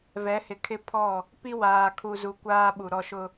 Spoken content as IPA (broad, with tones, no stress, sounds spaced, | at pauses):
v ɛ˨˦ h ɪ˨ kʰ ɪ˦ pʰ ɔ˦˨ | p i˦ w aː˨ kʰ u˨ z u˨ kʷ aː˦ ɓ u˨ ɾ ɔ˦ ʃ ʊ˦